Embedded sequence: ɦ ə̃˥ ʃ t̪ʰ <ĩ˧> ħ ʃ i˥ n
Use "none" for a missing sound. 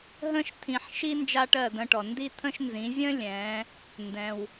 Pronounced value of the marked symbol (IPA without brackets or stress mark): ĩ˧